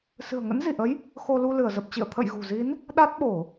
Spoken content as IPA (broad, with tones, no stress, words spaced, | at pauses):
sɨ̤˨˩ə̯ŋə̰˧˥nzi˧˩ʔə˨˦j | xo˧lu˧ lɨ˧˩ə̯zə˨˩p̚t͡ɕḭ˧˨ə̯ t̪ʰə̰˧˨jɣṳ˨˩zi˨˦n | ɗa˦˥t̚ɓo˧˩˨